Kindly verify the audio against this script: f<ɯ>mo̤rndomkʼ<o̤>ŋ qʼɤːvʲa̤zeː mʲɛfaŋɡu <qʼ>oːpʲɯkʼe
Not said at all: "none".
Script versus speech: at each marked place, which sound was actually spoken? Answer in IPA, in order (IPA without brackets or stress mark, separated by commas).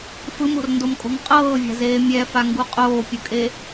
ɯ, o̤, qʼ